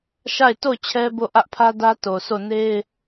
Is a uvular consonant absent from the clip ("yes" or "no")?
yes